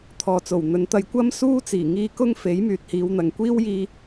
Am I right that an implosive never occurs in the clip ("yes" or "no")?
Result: yes